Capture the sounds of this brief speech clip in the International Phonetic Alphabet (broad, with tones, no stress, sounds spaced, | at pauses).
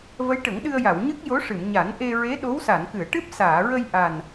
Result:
v ə˧˥ j ʈ ə˨˩˦ ŋ ɗ ɨ˧ ə̯ j a˨˩˨ w ɲ ɨ˦˥ k̚ j o˧˥ ʂ ɨ˨˩˨ m ɲ a˨˩˦ n ʔ e˧ ɹ e˧˥ ɗ o˧˥ w s a˨˩˨ n k ɨ˨˩˨ ə̯ ʈ ɨ˦˥ p̚ s aː˨˩˨ ɹ ə˧ j ʔ a˨˩ n